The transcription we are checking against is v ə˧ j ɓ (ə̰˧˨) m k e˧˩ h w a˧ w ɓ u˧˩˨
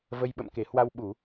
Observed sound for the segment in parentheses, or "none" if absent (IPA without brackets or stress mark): ə̰˧˨